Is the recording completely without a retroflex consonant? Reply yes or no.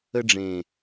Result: no